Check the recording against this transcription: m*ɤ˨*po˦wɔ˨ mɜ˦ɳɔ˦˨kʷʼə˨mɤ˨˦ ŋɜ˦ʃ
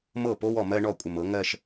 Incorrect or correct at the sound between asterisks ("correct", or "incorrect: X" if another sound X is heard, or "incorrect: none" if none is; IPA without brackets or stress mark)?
incorrect: ɤ˦˨